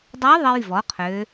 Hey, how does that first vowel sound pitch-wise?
rising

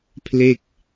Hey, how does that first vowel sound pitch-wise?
falling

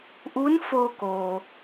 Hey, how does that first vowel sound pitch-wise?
rising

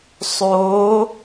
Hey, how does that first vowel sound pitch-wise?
rising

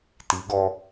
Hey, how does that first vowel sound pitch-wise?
rising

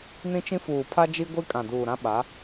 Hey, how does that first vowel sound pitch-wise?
high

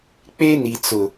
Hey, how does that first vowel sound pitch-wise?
high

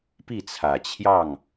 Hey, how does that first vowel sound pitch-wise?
falling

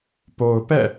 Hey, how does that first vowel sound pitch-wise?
low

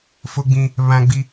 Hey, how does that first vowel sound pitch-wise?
high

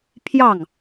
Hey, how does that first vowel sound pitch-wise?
falling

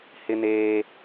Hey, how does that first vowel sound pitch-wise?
high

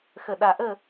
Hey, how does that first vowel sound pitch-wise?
low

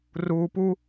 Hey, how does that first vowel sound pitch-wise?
low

